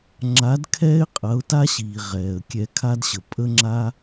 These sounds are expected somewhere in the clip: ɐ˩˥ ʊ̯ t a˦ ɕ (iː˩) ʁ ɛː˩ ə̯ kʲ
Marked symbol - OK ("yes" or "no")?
yes